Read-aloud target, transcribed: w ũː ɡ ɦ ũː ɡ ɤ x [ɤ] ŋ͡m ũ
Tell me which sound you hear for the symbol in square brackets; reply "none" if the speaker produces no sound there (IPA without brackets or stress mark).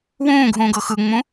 ɯ